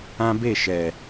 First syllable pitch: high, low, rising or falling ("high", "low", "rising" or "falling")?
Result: high